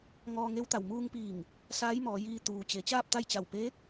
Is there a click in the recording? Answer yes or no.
no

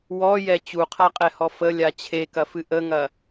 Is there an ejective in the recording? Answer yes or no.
yes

